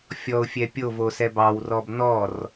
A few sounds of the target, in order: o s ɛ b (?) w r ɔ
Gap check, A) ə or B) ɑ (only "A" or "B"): B